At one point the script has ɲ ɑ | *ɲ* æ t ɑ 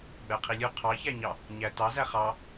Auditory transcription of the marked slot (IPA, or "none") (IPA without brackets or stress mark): ɲ